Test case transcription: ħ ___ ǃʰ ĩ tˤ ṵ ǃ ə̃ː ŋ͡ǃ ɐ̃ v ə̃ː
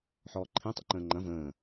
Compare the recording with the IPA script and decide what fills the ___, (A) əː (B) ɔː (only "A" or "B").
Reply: B